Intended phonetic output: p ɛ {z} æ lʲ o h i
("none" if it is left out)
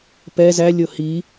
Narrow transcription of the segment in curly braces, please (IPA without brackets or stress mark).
z